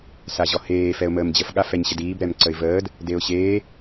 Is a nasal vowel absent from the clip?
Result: yes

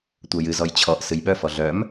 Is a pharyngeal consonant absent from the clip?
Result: yes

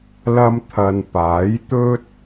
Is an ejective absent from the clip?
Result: yes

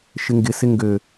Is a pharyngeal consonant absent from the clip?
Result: yes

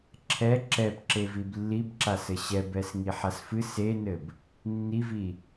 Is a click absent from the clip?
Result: no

